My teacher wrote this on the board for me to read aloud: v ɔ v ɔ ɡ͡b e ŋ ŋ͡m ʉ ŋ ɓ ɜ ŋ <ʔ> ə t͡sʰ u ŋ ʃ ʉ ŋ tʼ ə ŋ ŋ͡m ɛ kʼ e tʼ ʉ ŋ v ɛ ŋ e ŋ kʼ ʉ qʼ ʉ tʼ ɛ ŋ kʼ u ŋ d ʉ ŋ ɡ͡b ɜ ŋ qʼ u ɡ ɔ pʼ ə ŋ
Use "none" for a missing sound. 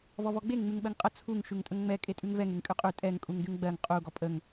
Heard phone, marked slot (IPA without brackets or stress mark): qʼ